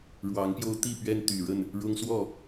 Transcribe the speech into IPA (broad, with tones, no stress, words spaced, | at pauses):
ɻwɑ˨˦ŋpjo˦ʊ̯ t̪i˥˨pɥɛ˦n t̪y˨˩ɻə˥˨n | ɻʊ˦ŋswɔ˥˨